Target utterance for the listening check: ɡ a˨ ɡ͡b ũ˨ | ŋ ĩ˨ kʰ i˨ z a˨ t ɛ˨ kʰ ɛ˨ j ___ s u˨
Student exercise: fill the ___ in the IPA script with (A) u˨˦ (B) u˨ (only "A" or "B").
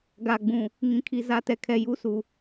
A